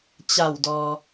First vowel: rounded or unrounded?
unrounded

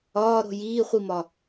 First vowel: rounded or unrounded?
rounded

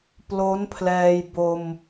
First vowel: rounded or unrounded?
rounded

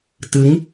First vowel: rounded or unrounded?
unrounded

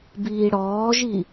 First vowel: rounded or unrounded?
unrounded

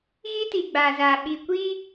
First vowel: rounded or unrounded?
unrounded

